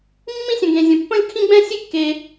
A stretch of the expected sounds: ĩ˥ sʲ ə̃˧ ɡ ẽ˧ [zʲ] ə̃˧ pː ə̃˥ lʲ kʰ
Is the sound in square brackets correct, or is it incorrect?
correct